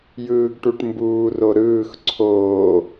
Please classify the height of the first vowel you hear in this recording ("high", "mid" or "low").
high